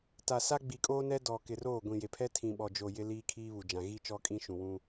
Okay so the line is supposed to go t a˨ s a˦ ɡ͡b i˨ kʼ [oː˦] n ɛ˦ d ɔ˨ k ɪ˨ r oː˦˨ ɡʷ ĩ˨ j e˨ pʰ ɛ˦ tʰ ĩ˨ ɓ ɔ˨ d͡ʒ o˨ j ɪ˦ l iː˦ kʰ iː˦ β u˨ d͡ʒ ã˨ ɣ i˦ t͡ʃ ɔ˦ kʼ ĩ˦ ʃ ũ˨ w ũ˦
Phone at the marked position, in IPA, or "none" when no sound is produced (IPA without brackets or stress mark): oː˦